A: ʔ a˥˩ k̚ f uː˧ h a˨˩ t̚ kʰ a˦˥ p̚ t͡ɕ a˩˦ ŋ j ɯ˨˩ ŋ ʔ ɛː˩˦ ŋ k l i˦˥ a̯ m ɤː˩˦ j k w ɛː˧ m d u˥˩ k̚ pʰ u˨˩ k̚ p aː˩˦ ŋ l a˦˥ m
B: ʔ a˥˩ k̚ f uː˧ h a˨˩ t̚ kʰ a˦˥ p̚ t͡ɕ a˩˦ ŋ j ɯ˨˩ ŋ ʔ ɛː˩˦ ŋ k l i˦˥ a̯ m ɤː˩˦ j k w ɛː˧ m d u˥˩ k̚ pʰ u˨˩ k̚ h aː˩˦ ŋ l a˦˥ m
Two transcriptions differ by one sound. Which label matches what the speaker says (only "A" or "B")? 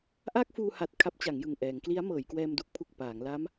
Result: A